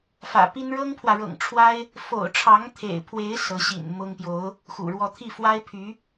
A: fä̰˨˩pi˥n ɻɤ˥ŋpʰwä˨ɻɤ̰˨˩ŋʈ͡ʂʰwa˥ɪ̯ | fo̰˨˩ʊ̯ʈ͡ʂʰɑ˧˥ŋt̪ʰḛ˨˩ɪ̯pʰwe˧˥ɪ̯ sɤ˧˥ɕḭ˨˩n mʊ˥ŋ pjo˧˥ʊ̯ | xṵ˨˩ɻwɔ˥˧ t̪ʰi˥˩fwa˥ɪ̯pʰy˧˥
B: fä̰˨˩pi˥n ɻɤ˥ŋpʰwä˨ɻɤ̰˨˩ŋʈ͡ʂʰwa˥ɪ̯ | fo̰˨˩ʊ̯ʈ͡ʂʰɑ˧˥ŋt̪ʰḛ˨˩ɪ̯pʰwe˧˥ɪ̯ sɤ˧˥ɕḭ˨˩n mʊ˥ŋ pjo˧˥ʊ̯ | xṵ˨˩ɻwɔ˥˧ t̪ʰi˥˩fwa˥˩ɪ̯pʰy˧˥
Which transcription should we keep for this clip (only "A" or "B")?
A